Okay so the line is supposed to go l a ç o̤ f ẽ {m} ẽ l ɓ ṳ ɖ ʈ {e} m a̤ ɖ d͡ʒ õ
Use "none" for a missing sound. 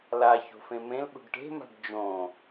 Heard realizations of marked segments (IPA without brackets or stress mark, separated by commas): m, e̤